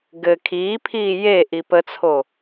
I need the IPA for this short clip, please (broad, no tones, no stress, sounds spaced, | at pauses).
ɡ ɘ kʰ iː pʰ iː j e ʔ i p ə t͡sʰ o